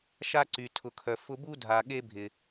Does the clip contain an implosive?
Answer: yes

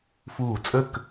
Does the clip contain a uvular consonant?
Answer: no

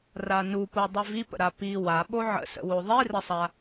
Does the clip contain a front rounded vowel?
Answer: yes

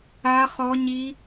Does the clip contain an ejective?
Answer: no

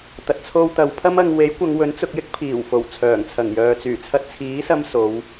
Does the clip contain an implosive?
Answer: no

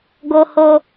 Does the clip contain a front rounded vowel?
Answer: no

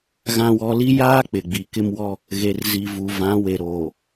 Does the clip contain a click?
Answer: no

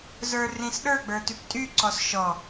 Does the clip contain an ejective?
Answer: yes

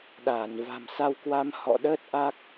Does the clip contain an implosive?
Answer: yes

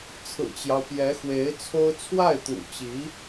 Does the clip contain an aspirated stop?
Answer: yes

